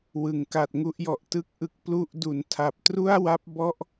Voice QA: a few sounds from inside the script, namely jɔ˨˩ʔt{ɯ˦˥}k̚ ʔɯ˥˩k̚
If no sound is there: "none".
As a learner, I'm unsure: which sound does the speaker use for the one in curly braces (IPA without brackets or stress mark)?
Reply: ɯ˥˩